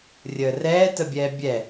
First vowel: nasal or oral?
oral